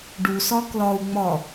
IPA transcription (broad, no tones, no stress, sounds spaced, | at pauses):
ɖ u s ɒ k l ɒ u̯ ŋ͡m ɒ